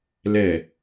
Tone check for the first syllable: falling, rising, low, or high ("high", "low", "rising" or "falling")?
low